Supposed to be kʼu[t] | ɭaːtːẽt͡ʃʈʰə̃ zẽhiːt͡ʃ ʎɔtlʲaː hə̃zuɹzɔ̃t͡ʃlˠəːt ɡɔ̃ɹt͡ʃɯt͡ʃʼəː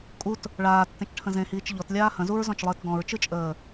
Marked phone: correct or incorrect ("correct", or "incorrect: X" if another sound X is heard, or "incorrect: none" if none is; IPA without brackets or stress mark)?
correct